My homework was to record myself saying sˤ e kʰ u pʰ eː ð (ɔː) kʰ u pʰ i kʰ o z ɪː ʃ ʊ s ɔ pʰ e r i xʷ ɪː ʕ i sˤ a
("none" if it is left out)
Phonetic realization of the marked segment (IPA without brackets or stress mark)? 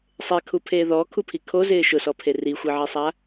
ɔː